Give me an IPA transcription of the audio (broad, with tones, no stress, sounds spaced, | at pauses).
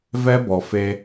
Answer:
v ɛ˦ b ɔ˨ f e˦